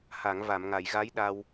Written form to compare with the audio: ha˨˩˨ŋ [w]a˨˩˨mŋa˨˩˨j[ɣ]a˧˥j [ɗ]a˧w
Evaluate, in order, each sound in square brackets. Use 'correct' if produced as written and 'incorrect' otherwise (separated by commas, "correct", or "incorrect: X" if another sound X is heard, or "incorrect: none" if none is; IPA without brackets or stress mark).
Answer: incorrect: v, correct, correct